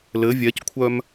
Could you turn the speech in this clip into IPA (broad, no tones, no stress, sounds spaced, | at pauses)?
l ɘ vʲ ɛ c kʷʰ œ m